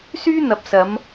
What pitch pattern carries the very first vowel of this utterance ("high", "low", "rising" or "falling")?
high